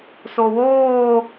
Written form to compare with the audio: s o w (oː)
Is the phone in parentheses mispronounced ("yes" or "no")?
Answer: no